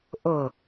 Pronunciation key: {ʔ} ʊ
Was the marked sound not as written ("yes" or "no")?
no